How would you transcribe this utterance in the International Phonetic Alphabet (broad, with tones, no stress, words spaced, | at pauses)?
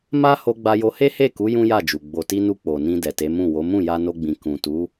ma˦ ho˧ɡ͡ba˧jo˧he˦ he˦˨ku˨˦ jũ˦ja˦˨d͡ʒu˨ ɡ͡bo˨ti˧nu˧ k͡po˨nĩ˧ dɛ˨te˨˦mũ˦˨wo˨˦ mũ˦˨ja˧no˧ɡ͡bĩ˨ kũ˨tu˨˦